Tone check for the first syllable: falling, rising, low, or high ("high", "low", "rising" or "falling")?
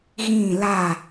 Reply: falling